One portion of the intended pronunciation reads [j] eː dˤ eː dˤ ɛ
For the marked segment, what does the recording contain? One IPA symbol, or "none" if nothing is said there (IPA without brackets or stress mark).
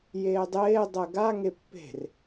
j